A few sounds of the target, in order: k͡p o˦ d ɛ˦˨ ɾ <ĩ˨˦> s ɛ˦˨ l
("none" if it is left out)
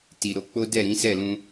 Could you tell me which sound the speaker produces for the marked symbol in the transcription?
ĩ˨˦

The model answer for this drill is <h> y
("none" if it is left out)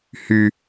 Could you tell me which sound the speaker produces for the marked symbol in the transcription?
h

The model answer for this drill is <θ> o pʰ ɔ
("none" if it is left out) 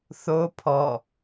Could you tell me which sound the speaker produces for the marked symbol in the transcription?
θ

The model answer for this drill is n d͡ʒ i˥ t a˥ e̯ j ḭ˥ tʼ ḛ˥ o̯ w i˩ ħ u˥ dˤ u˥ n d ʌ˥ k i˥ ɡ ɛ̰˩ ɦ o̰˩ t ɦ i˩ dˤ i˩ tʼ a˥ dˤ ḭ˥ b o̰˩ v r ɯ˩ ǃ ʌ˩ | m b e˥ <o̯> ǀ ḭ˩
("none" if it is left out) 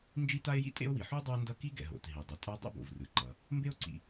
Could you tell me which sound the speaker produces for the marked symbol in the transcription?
o̯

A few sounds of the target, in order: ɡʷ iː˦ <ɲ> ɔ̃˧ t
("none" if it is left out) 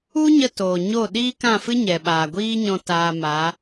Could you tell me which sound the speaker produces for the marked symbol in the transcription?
ɲ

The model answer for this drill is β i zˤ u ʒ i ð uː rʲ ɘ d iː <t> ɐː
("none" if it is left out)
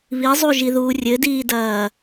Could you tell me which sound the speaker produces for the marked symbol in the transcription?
d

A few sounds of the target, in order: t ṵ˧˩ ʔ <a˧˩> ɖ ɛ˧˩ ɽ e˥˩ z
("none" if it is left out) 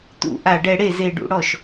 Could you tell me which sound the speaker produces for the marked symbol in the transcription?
a˧˩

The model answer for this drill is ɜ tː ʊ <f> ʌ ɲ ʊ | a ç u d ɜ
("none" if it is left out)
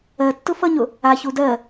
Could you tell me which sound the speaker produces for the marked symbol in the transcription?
f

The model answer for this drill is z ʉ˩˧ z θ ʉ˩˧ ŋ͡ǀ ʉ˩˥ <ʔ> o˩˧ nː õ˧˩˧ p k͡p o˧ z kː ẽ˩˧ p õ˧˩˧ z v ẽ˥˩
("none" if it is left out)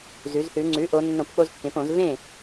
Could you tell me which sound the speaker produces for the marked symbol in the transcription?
ʔ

